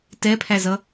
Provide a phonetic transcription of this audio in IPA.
tɛpʰæzʌ

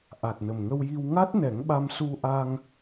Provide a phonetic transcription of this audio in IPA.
ʔa˨˩t̚nə˨˩mŋə˧wji˧w ŋa˦˥t̚nɛ˨˩˦ŋɓa˧m su˧ʔa˧ŋ

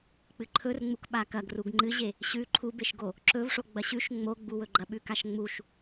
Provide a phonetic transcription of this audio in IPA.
k͡pɨǃʰɵrŋ͡muk ɓakɐɡ ruɡŋ͡ǃɨʑe | ɕʉ ǃʰubeʃɡo | ǁɵvʂo ɡ͡bɐɕʉʃ ŋ͡moɡ͡buwɵɡ͡ǃɐ ɓʉkaʃŋ͡muʃ

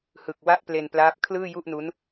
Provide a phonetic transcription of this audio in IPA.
hɯ˨˩k̚wa˥˩ʔple˧nplaː˦˥p̚ kʰlɯː˥˩ju˥˩ʔnu˦˥n

